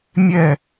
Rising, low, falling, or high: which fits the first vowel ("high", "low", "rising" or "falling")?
falling